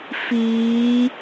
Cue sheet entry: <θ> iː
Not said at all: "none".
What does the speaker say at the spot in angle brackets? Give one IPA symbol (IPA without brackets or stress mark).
f